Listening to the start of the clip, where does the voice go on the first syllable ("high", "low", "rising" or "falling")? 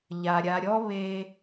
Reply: low